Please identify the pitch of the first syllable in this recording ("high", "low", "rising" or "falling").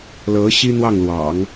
rising